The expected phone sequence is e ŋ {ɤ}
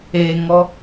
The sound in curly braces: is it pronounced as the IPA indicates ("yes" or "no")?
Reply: no